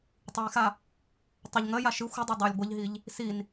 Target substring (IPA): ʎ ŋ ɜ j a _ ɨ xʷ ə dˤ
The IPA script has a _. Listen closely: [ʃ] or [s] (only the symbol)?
ʃ